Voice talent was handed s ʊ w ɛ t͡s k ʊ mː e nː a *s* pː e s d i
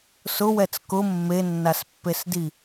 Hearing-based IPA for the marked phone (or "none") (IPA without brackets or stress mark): s